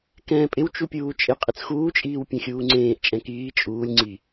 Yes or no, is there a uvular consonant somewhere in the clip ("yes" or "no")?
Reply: yes